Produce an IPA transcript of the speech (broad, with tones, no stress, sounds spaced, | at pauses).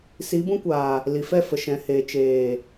s i˨˦ b ũ˧ kʷ aː˨ | l i˨ f ɛ˦˨ f ə˨ ʃ ɛ̃˨ h eː˨ t͡ʃ eː˨